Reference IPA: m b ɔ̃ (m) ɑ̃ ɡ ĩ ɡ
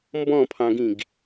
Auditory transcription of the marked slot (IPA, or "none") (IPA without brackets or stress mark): pʰ